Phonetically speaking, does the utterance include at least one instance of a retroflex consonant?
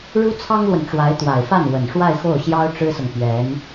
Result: yes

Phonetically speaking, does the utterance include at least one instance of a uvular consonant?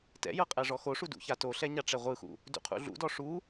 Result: yes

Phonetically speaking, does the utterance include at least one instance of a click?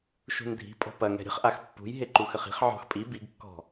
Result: yes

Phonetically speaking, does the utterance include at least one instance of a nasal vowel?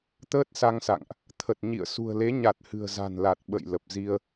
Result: no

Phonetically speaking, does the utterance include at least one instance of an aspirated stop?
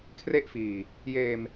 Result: yes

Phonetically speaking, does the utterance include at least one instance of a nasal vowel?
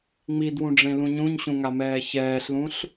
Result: yes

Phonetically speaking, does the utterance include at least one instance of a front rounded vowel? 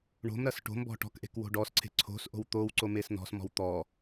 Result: no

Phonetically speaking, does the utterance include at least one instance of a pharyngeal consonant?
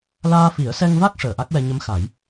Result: no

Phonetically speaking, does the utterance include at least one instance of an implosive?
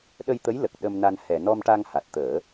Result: yes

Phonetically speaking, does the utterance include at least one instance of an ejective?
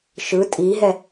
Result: yes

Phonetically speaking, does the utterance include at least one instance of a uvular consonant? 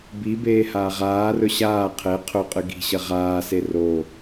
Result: yes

